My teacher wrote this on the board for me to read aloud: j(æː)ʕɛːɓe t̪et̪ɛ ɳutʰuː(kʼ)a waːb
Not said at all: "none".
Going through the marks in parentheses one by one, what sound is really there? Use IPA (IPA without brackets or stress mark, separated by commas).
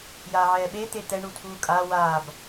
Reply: aː, kʼ